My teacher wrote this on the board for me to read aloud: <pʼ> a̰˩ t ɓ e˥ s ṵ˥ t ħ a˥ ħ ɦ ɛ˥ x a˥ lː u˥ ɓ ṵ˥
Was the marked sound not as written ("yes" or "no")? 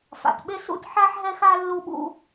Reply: yes